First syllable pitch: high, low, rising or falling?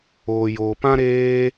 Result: low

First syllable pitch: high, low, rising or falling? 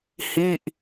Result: falling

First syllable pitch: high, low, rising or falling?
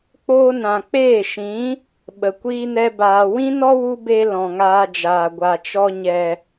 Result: high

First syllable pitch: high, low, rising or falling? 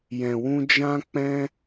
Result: low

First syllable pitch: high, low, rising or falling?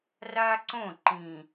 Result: high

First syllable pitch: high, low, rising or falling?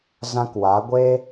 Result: high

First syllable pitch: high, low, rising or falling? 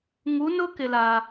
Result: rising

